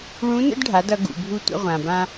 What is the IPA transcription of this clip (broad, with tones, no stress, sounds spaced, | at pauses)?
ɭ ũ˧˥ n ə̰˥ d ɖʱ a˩˧ d ʌ˩˧ ɡ ṵ˩ bʱ u˧ tʷ ə̰˧ ʁʷ ã˩ b ã˧